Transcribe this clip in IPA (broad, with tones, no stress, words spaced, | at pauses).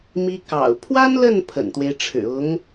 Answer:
mi˥ kɑ̰˨˩ʊ̯ pʰwa˥nlə˥˩n pʰə̰˨˩nt̪we˦ɪ̯ʈ͡ʂʰɻ̩˨˩ ʊ˧˥ŋ